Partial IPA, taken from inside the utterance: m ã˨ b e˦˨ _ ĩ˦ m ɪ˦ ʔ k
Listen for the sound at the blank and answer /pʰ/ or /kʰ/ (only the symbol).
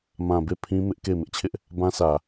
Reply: pʰ